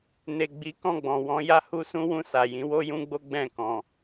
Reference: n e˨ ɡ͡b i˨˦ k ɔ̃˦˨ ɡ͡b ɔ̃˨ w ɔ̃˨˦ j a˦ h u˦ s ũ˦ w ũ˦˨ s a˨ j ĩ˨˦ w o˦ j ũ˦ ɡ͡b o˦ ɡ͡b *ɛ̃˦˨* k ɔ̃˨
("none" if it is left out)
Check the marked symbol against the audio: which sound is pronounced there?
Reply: ɛ̃˦˨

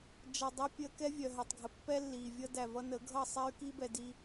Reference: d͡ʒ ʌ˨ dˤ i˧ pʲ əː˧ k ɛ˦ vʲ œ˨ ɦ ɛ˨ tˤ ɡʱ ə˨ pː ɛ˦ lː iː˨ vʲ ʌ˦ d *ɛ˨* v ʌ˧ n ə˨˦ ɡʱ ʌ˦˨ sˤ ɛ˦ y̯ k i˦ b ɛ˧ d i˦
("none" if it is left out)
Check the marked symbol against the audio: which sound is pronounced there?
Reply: æ˨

